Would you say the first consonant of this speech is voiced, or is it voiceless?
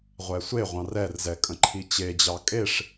voiced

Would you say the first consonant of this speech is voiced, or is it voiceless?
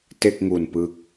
voiceless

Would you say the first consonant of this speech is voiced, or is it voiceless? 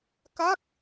voiceless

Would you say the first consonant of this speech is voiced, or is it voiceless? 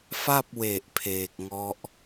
voiceless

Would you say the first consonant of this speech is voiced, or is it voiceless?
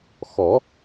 voiceless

